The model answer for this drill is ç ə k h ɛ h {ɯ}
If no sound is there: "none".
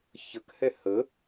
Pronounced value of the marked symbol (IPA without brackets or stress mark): ə